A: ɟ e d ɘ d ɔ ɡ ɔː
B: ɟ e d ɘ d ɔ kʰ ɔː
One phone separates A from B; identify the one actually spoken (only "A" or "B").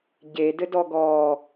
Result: A